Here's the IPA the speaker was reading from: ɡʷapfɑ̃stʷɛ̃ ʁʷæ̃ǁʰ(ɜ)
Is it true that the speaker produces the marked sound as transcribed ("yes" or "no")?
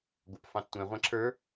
no